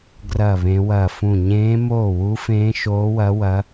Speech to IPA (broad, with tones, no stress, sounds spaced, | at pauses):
ɡ r ɐː˥˧ β ẽ˦˥ w ɐː˥˧ f ũ˥˧ ɲ ẽː˦˥ m oː˥˧ w u˦˥ f ẽː˦˥ ʃ oː˦˥ w ɐ˦˥ w ɐ˦˥